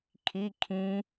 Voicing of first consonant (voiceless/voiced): voiceless